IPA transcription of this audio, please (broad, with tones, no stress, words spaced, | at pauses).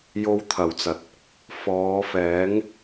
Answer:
jo˥wt̪ʰɐ˨˩wt͡sɐ˨t̚ | fɔː˨˧fɛː˨˥ŋ